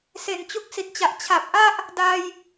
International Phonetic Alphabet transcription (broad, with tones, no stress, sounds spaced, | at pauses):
s e˨˩ n t͡ɕ u˦˥ k̚ s i˨˩ t̚ t͡ɕ a˨˩ ʔ t͡ɕʰ a˨˩ p̚ ʔ a˥˩ ʔ | d a˧ j